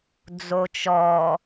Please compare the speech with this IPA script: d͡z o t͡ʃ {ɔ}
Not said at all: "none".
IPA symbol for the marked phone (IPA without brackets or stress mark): ɔ